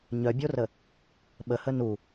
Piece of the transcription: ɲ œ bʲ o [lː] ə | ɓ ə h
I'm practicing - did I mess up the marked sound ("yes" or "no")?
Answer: yes